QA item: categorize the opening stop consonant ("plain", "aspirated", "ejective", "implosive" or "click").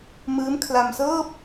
aspirated